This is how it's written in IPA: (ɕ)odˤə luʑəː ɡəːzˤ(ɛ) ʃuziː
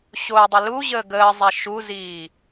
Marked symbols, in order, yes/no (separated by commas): yes, yes